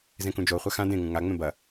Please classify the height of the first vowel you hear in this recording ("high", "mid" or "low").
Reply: mid